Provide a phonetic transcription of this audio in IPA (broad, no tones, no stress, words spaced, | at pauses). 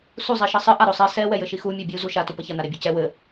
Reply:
su zˤiʃɘsˤɨ ʔaɾosˤi sɛ wɛjɘʃixu mʲabʲu zuʃa tupɐçɐ naɾebʲocɛ wɘ